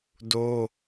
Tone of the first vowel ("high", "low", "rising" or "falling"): high